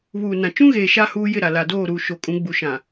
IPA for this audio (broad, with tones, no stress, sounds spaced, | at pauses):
β uː˨ n ã˨ t͡ʃ ũ˦ ɣ eː˨ ʃ a˦ h uː˦ j ɪ˦˨ ɾ a˨ l a˨ d oː˦˨ ɾ uː˨ ʃ o˨ kʼ ũ˨˦ ɡ͡b u˨ ʃ ã˨